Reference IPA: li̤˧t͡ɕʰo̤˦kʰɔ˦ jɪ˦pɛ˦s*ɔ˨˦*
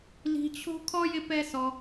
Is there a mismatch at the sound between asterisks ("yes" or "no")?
yes